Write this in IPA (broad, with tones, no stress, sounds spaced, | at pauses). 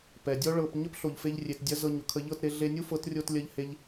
p ɛ˨ dʲ ɔ˦ ɭ ɤ˧ p ɲ ə˦ p ɬ o˨ ʎ f e˧ ʎ rʲ e˨ t dʲ ɐ˧ z ɤ˧ ɲ ʊ˨ kʰ ə˧ ʎ ɤ˦˨ t ɾ e˧ ɮ e˧ nʲ u˦ f ɤ˨˦ t rʲ o˧ t lʲ ɐ˧ ʎ h e˧ ʎ